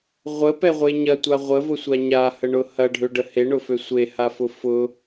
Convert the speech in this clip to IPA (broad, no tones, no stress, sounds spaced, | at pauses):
ʁʷ ə p ɛ ʁʷ e ɲ ɐ tʷ a ʁʷ ə v ʊ sʷ a ɲ a h ə ɳ ʊ h ɐ ɖʱ ø ɖ ə h e ɳ ʊ f ø sʷ e h a f ʊ f ʊ